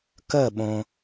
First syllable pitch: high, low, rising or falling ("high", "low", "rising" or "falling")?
falling